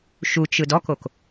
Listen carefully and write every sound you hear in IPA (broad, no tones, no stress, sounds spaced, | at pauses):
ʃ u t͡ʃ ɯ d ɔ k o k